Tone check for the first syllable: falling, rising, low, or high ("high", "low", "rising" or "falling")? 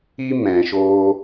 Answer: high